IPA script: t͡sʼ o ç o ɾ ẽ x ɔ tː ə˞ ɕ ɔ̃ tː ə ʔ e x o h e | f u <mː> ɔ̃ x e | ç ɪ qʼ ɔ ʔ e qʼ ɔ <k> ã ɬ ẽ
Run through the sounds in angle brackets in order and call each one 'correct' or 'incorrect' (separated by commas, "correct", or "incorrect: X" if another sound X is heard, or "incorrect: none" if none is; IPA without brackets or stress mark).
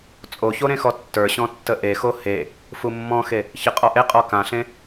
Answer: correct, correct